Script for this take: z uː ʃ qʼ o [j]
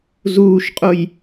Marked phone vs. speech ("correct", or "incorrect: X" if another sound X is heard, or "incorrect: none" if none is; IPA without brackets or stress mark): correct